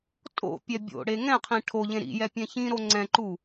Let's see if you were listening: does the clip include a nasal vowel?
yes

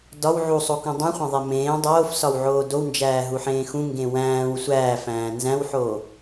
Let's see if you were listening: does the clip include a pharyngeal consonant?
yes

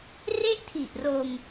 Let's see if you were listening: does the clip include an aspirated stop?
yes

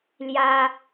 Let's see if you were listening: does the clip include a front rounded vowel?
no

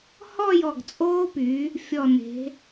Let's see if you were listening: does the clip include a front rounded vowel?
yes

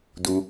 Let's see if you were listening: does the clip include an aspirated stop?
no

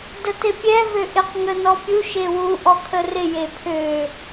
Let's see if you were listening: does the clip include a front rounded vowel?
yes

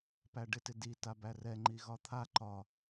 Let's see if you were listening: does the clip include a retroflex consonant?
yes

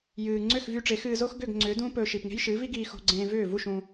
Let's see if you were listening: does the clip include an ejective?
no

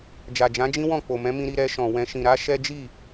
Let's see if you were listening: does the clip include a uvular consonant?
no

